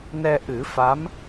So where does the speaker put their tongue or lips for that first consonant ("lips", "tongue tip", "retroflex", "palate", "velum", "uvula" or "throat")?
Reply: tongue tip